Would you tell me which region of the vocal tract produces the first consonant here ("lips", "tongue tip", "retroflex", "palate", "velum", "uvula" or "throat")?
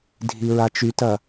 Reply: tongue tip